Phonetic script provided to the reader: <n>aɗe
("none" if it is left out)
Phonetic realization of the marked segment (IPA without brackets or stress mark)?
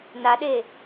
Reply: n